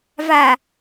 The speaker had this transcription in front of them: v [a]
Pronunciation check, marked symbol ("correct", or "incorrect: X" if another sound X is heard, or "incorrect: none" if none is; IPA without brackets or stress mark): correct